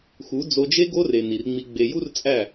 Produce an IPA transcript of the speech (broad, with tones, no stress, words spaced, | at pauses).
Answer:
xu˨˦ d͡zo˧d͡ʒe˦ ɡo˦re˨ ni˨rŋ͡mi˧ɡ͡be˧ ju˦rt͡sʼæ˦˨